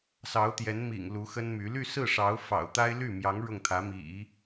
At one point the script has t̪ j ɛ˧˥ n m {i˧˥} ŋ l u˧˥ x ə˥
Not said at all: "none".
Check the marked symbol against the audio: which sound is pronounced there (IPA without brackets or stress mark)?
ḭ˨˩